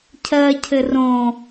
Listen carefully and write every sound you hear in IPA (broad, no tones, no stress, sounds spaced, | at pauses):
cʰ ɜː cʰ ɘ r õ